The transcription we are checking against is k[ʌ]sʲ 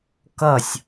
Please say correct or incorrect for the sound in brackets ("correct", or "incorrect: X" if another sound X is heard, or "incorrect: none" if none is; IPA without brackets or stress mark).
correct